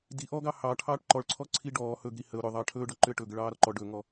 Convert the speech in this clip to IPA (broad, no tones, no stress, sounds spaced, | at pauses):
d i ʔ ɔ ɡ ɑ h ɑ ʈʰ ɑː ʈ ǃ ɔ ɭ ǀʰ ɔ ǀʰ i ɖ ɔː h ɵ ɡ ɾ i h ə ʊ̯ ɾ ʏ ðˤ ɑ ʈʰ ɵː ɖ ɔ ǃ ʏ ə̯ ʈ ɵ ɡ ə ɭ ɑː ɾ ɔ ǃ ɔ ɖ ɵ ŋ ɔ